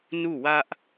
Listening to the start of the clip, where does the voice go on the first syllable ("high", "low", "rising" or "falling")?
falling